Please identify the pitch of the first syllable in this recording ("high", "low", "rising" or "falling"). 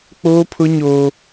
high